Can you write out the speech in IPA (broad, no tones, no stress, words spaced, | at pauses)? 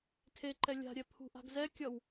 tʰeǃɛ lʲa̤ɾʲɛ pʰṳʔa̤ɡ zɛ kʲʌw